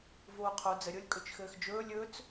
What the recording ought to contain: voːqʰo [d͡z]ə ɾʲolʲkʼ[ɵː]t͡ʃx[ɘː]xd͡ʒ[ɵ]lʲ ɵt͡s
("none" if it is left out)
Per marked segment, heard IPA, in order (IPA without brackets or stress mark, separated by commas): d͡z, ɵ, ɘː, ɵː